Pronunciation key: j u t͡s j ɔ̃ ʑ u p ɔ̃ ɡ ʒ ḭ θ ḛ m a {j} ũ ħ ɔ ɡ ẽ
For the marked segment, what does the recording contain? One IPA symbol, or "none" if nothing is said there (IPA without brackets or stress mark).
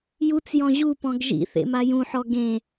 j